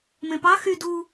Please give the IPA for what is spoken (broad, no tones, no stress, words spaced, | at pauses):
mẽpɑ xy du